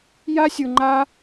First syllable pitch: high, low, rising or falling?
high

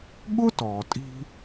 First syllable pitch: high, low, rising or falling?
high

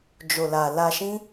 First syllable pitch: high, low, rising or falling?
low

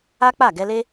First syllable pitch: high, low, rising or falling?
high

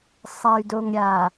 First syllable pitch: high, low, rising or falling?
low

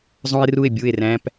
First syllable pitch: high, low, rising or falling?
high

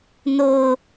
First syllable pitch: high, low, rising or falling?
low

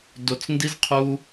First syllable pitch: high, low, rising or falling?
low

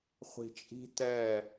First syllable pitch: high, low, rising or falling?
low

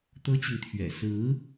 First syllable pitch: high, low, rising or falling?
high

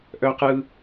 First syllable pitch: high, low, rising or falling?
high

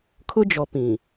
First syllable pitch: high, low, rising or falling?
high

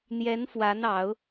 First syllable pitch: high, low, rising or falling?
rising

